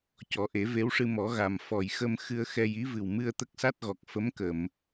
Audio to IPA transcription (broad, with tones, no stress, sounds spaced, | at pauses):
c ɔ˨˩˦ ʔ e˨˩˦ v e˧˥ w ʂ ɨ˧ m ɔ˨˩˦ ɣ a˨˩ m f ɔ˨˩ j x ə˧ m x ɨ˧ ə̯ x ɛ˧ j i˧˥ v ɨ˨˩ w m ɨ˧ ə̯ t̪ ə˦˥ k̚ s a˦˥ t̚ ɣ ɔ˨˩ k̚ f ə˧˥ m k ə˨˩˨ m